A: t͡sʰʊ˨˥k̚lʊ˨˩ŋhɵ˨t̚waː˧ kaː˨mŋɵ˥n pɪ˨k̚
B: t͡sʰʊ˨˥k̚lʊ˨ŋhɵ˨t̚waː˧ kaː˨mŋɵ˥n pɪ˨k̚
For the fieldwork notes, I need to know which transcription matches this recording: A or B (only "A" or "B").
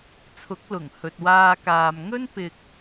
A